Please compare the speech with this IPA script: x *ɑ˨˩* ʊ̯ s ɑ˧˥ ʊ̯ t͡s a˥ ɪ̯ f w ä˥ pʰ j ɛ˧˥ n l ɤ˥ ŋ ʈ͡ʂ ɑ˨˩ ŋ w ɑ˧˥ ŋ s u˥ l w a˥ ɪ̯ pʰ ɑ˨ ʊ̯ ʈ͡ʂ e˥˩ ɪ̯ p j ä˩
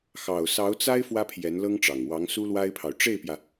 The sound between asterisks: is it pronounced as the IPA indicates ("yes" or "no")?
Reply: yes